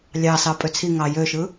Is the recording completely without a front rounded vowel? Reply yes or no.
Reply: no